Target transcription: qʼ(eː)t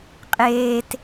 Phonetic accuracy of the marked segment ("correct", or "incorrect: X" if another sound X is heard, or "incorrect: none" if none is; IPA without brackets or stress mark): correct